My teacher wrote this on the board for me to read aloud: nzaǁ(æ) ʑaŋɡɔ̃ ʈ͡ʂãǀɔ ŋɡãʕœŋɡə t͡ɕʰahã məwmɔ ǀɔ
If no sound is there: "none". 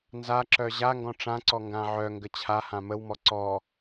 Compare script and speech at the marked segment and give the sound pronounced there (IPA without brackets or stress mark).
œ